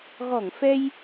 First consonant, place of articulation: velar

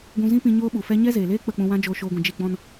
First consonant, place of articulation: velar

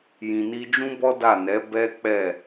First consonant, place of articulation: palatal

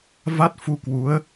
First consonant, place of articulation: labial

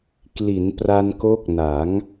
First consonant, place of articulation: velar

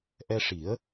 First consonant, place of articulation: glottal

